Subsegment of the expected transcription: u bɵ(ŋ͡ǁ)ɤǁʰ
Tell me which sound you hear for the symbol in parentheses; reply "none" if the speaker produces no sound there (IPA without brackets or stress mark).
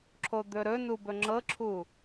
ŋ͡ǁ